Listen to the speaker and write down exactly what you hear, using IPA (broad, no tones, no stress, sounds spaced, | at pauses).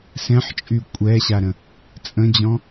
s ɛ̃ ħ t͡ʃʼ y kʷʼ ɛ ɕ a ɾ ə̃ | t͡sʼ ə̃ d͡ʑ ɔ̃